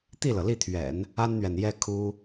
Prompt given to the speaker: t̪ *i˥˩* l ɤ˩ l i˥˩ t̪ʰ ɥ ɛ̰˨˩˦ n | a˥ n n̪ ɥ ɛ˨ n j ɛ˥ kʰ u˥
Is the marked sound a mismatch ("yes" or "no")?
no